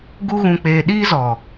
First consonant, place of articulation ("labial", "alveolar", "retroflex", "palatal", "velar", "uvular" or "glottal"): velar